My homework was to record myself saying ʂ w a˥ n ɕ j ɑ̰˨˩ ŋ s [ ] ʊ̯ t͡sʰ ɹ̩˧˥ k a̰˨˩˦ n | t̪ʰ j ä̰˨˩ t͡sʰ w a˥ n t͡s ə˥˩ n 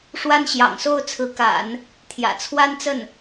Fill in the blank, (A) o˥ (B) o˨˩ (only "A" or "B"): A